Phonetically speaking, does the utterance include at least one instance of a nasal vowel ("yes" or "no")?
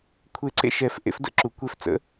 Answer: no